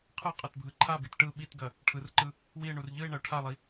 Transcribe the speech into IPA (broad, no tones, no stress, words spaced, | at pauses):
qʰɯ qʼɐtbʱɯǃʰabit ʈɯ ɓitɡɐ | ʈʰɯrǃɯ | wie̯ɳur ʎɯe̯ ɳɐo̯ʈʰalˠi